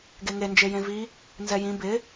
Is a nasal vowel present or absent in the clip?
present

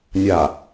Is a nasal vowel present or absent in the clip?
absent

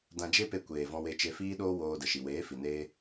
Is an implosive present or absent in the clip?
present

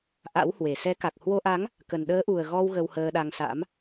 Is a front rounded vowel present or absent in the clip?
absent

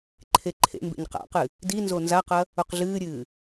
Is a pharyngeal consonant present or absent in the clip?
absent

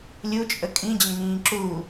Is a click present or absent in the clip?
present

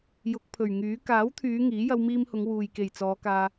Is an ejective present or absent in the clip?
absent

